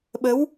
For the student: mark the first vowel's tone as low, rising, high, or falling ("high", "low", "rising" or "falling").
rising